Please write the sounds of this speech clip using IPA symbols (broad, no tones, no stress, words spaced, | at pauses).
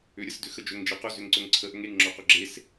ʏɾʲəsdʏxə d͡ʒɵŋd͡ʒe qɵzʏŋǀɵŋ ǀʰəʔɵŋ eŋŋ͡ǁɔqʊ ɡ͡ǁes